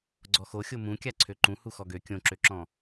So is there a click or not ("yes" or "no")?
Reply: yes